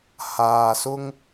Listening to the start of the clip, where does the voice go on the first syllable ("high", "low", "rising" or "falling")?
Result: low